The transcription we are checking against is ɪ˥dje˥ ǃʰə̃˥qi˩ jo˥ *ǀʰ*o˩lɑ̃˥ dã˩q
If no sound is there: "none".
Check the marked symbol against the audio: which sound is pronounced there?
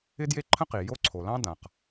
ǀʰ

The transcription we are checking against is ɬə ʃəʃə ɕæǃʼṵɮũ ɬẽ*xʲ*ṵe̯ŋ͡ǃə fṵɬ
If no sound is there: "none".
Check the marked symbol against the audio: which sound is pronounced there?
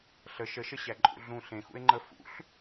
x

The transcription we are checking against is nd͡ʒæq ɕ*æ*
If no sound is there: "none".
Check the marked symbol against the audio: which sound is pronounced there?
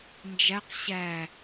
æ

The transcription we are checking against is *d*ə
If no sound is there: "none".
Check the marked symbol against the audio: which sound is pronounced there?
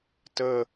t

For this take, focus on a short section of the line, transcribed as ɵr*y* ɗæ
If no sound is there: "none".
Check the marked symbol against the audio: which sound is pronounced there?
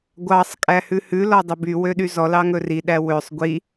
i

